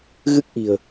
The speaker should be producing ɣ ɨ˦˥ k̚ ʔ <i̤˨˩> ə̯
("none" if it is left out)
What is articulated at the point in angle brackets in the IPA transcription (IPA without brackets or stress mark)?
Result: i̤˨˩